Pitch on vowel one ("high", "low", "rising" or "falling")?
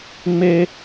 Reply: high